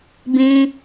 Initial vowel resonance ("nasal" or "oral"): nasal